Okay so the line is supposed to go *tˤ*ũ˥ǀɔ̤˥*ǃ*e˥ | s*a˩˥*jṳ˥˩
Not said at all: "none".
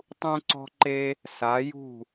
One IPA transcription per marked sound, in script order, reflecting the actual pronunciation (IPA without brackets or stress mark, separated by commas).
tˤ, ǃ, a˩˥